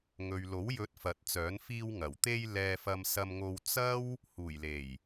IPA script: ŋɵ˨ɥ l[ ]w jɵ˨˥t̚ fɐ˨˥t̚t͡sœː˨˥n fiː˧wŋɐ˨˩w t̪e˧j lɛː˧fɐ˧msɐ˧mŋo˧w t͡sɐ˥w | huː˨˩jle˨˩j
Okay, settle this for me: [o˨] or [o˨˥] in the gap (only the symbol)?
o˨˥